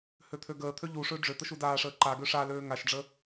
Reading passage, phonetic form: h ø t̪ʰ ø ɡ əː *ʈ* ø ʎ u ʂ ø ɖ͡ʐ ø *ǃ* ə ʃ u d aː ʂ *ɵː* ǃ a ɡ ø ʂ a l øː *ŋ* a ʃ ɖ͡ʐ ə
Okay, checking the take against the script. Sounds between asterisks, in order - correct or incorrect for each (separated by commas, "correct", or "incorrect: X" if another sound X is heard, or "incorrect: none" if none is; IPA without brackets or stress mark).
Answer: incorrect: t̪ʰ, incorrect: t̪, incorrect: əː, correct